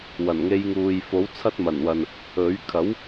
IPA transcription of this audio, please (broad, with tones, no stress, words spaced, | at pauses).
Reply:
wɐ˨˩nŋe˧jŋuː˨jfo˨˥w t͡sʰɐ˥t̚mɐ˨˩nwɐ˨n | ɵ˨˥ɥ kʰɐ˨˥w